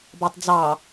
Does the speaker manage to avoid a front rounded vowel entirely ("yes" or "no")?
yes